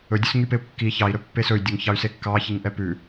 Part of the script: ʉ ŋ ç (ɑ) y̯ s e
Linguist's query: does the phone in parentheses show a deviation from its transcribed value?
no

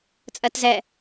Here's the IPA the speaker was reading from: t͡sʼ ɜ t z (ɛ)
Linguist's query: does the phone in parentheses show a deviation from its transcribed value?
no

